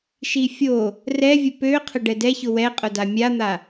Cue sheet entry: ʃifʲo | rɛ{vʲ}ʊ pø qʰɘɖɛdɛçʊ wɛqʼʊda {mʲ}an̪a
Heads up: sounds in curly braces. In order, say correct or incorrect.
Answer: correct, correct

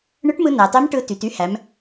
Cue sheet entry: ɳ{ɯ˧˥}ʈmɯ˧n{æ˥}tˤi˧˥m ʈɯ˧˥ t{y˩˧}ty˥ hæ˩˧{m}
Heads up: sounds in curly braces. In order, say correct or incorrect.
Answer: correct, incorrect: æ˩, correct, correct

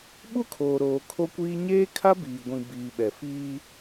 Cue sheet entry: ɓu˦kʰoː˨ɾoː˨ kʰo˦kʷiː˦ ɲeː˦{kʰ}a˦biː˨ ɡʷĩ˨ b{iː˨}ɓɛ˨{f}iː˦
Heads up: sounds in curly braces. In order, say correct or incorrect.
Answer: correct, correct, correct

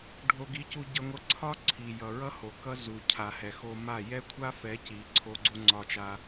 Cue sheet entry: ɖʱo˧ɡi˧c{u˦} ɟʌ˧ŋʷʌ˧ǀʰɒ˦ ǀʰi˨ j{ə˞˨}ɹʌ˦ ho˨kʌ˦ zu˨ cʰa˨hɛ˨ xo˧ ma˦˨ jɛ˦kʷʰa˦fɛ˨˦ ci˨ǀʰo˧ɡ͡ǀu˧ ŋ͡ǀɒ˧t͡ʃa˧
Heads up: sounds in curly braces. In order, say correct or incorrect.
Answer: incorrect: u˧, incorrect: ʌ˨

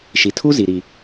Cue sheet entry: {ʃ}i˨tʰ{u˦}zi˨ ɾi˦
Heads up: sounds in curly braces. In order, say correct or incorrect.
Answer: correct, correct

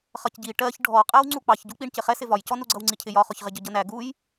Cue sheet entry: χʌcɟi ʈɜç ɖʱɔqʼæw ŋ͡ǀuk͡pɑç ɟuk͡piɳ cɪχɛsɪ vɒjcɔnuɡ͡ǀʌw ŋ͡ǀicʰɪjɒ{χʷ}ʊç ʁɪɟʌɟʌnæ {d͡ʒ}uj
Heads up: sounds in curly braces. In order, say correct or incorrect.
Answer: incorrect: χ, incorrect: ɡ

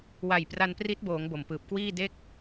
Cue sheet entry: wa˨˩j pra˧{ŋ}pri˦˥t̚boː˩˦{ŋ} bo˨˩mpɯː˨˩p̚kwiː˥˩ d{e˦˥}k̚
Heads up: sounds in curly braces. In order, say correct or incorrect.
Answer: incorrect: n, correct, correct

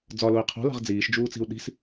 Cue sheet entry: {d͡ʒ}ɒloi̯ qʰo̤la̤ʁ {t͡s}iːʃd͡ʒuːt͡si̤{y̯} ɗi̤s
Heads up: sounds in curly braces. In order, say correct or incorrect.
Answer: incorrect: d͡z, incorrect: d͡z, incorrect: u̯

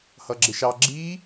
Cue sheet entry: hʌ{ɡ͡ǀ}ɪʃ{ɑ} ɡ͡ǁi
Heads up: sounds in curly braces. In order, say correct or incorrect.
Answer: incorrect: ɡ͡ǁ, correct

